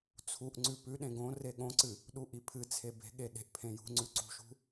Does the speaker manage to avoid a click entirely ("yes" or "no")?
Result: no